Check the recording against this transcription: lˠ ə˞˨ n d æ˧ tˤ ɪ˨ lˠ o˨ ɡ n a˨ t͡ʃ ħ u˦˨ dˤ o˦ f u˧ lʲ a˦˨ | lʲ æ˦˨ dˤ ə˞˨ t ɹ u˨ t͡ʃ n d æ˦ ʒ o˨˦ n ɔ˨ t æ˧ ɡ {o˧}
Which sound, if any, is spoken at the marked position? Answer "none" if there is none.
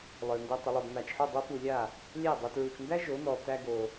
o˧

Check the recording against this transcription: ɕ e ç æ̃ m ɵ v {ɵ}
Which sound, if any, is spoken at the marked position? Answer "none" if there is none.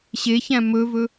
ɵ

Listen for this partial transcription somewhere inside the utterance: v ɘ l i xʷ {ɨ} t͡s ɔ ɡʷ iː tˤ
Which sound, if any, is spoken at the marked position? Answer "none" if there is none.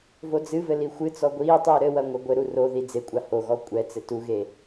ɨ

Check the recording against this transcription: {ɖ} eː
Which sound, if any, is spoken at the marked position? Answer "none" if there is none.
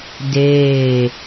d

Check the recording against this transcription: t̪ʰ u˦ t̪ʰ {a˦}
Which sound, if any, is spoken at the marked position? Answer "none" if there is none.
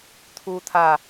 a˦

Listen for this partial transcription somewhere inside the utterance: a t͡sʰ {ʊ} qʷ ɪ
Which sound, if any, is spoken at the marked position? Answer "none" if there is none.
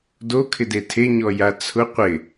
ʊ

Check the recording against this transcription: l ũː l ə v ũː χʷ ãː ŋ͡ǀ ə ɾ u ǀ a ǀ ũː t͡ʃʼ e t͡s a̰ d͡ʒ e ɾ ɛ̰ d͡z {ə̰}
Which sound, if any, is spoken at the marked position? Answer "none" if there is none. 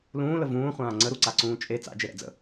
ə̰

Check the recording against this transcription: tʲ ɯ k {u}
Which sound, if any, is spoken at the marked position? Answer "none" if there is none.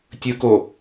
o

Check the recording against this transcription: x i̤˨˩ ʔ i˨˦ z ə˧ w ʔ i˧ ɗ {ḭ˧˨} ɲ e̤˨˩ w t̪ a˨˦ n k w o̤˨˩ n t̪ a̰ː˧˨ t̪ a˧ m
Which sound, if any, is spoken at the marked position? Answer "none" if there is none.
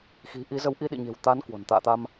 ḭ˧˨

